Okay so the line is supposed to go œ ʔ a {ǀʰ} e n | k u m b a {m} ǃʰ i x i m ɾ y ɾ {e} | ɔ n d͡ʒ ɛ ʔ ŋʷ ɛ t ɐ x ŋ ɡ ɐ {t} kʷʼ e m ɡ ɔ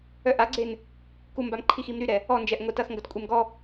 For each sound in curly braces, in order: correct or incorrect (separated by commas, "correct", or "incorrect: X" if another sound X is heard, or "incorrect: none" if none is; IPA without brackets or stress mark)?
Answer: incorrect: ɡ͡ǀ, correct, incorrect: ɛ, correct